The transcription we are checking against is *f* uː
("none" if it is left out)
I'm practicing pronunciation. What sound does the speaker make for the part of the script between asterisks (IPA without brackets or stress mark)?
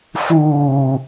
f